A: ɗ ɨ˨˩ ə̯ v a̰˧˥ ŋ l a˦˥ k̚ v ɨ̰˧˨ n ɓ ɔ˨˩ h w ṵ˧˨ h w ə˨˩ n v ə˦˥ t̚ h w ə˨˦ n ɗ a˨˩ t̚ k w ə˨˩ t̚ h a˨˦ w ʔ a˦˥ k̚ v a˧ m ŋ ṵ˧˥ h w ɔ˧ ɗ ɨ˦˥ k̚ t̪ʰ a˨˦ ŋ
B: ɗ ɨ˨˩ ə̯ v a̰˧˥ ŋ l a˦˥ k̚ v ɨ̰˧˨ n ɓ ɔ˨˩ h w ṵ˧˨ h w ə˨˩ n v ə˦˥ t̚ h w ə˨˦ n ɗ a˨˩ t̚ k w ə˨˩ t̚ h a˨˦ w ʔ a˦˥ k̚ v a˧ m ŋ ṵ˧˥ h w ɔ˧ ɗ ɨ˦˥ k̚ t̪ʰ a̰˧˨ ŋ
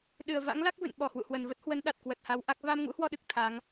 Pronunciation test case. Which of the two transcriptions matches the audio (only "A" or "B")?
A